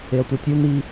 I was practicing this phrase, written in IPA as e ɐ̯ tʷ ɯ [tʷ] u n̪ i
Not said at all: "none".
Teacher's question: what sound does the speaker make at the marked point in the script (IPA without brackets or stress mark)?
tʲ